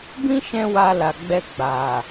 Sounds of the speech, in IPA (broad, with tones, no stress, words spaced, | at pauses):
bĩ˦ʃɛ̃˧ wa˧la˨ ɡ͡bɛ˧ɡ͡ba˨